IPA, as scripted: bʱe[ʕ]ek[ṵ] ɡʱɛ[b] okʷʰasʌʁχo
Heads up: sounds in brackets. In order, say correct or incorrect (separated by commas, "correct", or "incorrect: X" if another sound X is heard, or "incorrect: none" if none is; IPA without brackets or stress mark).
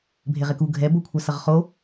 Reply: incorrect: ʁ, incorrect: u, correct